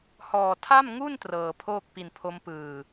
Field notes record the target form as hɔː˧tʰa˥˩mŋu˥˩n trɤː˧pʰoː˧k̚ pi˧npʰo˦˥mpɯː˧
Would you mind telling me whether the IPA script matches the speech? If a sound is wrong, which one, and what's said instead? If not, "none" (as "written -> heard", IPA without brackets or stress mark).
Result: oː˧ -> oː˥˩